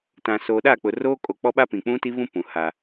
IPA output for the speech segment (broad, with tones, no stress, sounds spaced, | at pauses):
t ã˨ s o˨ ɗ a˦˨ k͡p ʊ˨ r oː˦ kʼ o˨ k͡p ɔ˦ ɓ a˦ p ĩ˨ k͡p ũ˦ t i˦ β ũ˦ p ũ˨ h a˦